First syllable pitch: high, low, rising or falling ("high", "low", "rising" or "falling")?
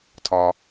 high